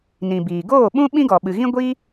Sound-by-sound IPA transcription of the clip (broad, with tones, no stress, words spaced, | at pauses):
nĩ˨biː˨ ɡoː˦˨ ɓũ˦ ɓĩ˦ɡɔ˨ɓɨ˨ɣĩ˦ ɡʷi˦